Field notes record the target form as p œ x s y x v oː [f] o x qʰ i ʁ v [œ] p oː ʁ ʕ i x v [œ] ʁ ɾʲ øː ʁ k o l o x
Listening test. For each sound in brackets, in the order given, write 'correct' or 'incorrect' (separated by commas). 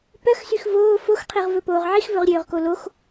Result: correct, incorrect, incorrect